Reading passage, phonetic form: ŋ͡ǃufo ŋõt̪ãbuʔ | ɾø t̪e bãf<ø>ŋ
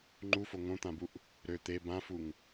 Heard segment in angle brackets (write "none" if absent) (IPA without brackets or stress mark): u